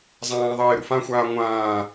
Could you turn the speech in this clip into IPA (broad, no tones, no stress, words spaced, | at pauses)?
zˤãːðˤeː ɾṵfãxʷaː ŋʷãː